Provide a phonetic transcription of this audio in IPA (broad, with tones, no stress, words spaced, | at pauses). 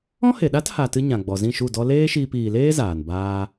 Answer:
ɔ̃˦he˨ɗa˦t ha˧ tɨ˦ ɲã˨ ɡ͡bɔ˨zĩ˦˨ʃu˦˨dɔ˦ leː˦ʃiː˧p iː˨leː˦ zaː˨nbaː˦